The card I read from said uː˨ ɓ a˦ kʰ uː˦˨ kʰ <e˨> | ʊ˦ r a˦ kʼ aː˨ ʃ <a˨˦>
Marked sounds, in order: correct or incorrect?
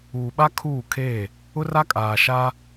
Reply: incorrect: e˦˨, incorrect: a˦

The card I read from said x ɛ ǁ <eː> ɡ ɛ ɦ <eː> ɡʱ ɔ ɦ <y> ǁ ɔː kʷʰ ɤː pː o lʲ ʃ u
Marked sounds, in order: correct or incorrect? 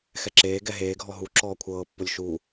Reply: correct, correct, incorrect: u

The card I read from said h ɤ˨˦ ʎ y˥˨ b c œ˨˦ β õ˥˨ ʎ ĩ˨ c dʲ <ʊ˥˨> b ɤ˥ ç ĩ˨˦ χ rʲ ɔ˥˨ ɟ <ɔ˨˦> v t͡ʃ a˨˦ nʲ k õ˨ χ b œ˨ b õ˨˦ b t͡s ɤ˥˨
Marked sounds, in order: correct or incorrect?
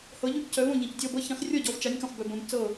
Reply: incorrect: ɔ˥˨, correct

